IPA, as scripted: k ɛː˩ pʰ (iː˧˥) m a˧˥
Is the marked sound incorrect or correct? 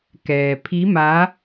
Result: incorrect